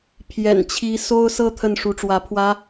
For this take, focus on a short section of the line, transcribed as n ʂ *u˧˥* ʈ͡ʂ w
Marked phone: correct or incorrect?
correct